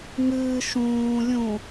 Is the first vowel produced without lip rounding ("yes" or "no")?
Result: yes